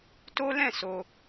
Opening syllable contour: high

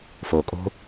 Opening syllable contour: low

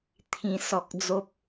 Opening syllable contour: high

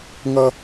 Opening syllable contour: high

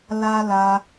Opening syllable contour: high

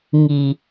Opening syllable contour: low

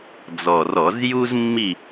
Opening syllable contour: low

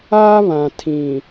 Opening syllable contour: high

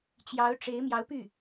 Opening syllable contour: rising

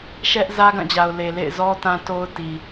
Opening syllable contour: high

